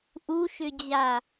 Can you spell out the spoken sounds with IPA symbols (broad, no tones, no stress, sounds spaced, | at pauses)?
ʔ u ʃ ʏ d͡ʑ a